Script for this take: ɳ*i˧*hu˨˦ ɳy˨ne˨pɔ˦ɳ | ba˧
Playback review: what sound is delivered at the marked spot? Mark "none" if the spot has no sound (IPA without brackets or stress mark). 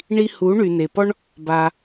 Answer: i˧